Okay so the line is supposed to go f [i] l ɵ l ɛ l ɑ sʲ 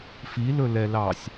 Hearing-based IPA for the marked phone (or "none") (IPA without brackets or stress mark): i